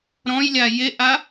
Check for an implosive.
absent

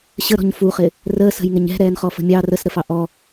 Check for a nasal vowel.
absent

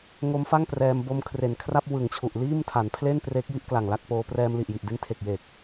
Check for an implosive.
absent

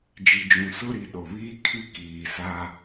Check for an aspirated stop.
present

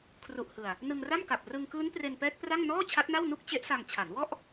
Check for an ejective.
absent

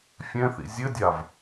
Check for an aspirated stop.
absent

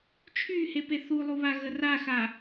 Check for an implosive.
absent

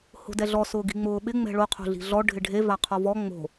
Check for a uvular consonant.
present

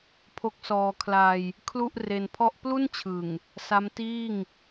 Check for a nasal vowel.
absent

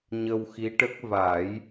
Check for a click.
absent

